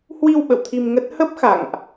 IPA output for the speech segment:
hwi˧w ɓə̰˧˨wt̪ʰi˧mŋə˦˥t̚ hə˦˥p̚xa̰˧˨ŋʔ

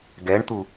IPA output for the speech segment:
ɡɛɳt̪u

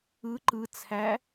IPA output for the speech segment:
ɯ ǃɯt͡sʰæ

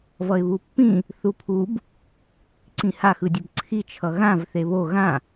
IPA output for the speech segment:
vʌɪ̯βupːĩ | θupʰub | ǀĩha xɯdʲʌbǀʰi t͡ʃʰʌɣãv θeβo ɣã

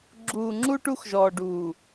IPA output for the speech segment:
ɡ͡ǁuː˨ŋ͡ǁu˦ ʈu˦xʒɔː˨ɖuː˨

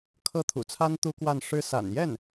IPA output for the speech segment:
kʰɤ˥˩t̪ʰṵ˨˩t͡sʰa˥n t̪u˥kwa˥˩n ʂɻ̩˥ sa̰˨˩njɛ˥˩n

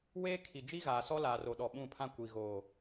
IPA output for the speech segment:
weː˦kʰi˨ d͡ʒi˦ɣaː˨ sɔ˦laː˨ro˨ɗɔ˨ ɓũ˦˨pʰã˦ kʷi˨ɣoː˨

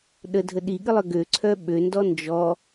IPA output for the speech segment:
ɗədʱə ɗiɠɨlˠœ ɡøǀʰœ ɓøndɔ nd͡ʒɔ

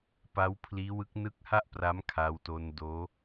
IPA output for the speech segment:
pa˦˥wpʰliː˦˥wɯ˦˥k̚ nɯ˦˥k̚ha˥˩ʔ pra˦˥mkʰa˧wto˧n doː˦˥

